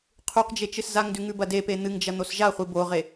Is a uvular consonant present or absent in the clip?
present